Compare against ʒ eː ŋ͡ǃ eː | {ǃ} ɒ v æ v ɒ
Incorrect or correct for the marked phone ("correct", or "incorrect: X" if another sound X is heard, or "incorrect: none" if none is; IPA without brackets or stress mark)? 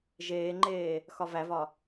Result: incorrect: x